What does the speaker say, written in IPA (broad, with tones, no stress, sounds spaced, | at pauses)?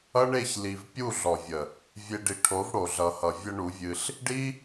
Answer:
ʌ˦ ɳ e˦˨ ç l i˨ v pʲ u˦˨ ɮ ɔ˨ vʲ ə˨ | vʲ e˧ ɖ i˨ ʈʰ o˨˦ v ɽ o˨ ɮ ʌ˨ h ʌ˨ vʲ ə˦ ɳ u˨˦ vʲ ɨ˧ ɬ | ɖ i˦